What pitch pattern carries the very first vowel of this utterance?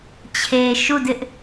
low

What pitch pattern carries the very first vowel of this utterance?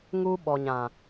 high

